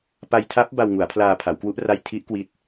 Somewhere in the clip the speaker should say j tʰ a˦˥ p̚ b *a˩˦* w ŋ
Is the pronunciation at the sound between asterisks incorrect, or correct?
incorrect